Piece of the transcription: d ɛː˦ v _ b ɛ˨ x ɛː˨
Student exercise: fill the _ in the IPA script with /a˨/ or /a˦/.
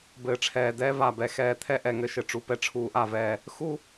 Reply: a˨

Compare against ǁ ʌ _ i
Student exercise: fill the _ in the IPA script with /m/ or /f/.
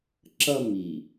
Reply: m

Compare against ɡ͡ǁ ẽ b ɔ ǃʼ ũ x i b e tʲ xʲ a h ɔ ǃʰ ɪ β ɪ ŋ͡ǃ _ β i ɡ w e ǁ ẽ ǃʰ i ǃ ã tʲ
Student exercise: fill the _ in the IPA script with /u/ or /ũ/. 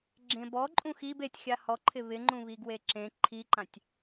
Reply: ũ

